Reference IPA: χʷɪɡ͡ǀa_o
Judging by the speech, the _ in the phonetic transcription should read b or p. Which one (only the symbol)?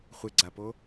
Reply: p